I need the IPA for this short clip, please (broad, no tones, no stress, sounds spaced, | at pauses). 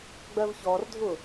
ɡ͡b ɜ v ç ɔ r dʱ ʊ